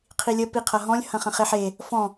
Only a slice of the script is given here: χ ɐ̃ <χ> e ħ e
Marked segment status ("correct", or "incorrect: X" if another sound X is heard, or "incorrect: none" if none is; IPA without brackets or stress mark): correct